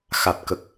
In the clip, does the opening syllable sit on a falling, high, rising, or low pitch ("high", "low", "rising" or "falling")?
low